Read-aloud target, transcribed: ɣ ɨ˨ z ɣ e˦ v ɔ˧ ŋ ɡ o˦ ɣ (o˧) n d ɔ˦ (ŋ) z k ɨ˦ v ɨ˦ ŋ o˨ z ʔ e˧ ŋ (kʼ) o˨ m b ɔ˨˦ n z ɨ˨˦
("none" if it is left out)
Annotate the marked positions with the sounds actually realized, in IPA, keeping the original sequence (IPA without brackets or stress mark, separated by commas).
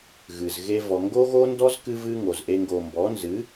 o˦, none, ɡ